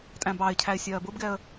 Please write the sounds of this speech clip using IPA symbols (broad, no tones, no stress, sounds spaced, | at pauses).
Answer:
tʼ æ̃ b ɑ ɪ̯ cʰ æ ɪ̯ sʲ ɜː b ʊ b ɡ ɛ ə̯